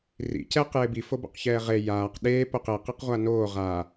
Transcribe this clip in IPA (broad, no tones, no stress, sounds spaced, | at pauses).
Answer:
r ḭ c ɛː q j e b i f o b o̰ q ç ɛː ʁ e j aː q ɗ eː p o q e q i q ʁʷ a n oː ʁ a